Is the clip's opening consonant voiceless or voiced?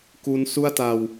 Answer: voiceless